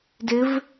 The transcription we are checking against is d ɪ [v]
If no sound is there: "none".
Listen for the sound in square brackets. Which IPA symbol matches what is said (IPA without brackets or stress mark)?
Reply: v